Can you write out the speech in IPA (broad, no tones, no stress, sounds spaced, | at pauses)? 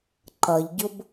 ǃ ʌ ʎ ɟ ʊ b